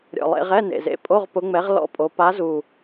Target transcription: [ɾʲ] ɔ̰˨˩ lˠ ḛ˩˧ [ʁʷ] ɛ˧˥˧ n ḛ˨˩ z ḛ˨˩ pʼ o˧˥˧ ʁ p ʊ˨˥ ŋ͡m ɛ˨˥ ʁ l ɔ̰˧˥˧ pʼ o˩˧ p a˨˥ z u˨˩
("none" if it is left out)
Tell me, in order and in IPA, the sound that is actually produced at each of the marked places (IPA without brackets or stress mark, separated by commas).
ɾʲ, ʁ